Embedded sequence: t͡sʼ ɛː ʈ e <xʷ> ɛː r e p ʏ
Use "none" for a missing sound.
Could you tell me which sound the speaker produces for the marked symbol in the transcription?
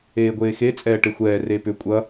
xʷ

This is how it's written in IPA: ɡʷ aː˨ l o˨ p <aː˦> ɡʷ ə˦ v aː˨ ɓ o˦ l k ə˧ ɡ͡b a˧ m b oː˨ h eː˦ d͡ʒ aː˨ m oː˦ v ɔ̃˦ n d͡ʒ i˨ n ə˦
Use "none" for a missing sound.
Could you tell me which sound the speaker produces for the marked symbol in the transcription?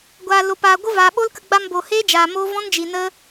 aː˨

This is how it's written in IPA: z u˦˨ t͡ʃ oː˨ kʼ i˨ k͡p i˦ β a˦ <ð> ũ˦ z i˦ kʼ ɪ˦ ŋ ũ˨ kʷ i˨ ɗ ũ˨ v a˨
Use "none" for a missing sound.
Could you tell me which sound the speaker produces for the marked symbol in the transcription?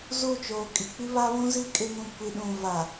β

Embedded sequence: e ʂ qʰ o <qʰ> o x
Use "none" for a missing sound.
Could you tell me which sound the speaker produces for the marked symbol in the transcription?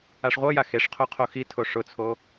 qʰ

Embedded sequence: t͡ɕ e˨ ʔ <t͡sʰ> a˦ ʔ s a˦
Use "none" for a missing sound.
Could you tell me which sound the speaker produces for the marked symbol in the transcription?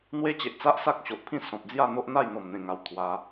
t͡s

